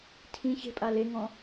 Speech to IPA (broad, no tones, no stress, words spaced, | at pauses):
tʰĩ çe̤pʼa leŋɔ̃